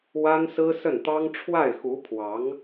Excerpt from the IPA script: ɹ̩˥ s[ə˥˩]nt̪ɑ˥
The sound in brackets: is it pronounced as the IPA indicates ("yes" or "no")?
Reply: yes